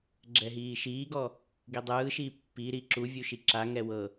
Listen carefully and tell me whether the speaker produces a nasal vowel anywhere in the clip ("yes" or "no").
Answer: no